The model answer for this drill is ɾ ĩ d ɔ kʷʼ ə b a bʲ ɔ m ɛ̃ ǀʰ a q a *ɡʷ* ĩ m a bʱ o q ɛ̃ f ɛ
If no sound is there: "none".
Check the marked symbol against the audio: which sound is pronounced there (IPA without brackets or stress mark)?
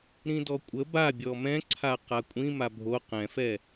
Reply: kʷʼ